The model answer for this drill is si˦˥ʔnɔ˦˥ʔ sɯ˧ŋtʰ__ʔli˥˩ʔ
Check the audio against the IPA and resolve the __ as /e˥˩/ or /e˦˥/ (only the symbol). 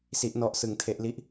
e˦˥